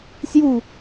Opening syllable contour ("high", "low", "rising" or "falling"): falling